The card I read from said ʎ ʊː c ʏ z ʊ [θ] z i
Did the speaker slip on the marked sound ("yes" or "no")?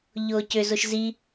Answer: yes